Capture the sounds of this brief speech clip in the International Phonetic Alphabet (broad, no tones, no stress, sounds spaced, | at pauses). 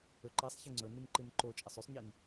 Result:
ɵ ǃ i sˤ ç i ŋ͡ǀ ɵ n ɨ n ǃ ɨ n ǃ o t͡ʃʼ ɐ sˤ ʉ sˤ ɲ i n